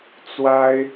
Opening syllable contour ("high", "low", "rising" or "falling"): high